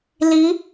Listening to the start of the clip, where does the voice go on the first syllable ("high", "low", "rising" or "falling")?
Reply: rising